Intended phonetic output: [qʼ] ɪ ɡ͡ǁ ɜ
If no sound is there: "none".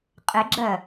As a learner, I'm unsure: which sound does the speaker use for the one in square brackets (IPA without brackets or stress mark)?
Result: qʼ